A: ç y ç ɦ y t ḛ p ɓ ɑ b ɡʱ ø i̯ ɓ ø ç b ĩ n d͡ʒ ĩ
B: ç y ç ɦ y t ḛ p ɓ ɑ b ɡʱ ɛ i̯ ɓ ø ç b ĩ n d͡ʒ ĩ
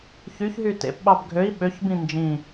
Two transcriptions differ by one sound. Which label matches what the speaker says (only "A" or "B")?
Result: A